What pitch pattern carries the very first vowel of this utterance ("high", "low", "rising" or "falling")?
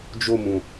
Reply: falling